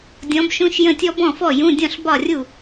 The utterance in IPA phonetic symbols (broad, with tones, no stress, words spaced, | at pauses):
dʲɔ̃˨˥bʃũ˧˥˧ʃjə̃˥˩tʲɔ˥ bɔ̃˥˩fɔ˥˩jũ˧˥˧ dʲɔ̃˥˩ɬbɒ˥˩rʲu˥˩